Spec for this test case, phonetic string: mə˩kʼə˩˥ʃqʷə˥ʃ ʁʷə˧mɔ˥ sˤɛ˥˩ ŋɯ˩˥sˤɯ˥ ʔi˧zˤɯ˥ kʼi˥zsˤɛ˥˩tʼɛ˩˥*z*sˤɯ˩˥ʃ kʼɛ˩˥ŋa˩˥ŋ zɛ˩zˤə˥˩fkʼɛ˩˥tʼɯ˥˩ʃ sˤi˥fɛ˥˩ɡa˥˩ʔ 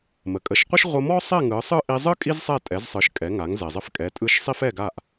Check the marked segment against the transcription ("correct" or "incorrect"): correct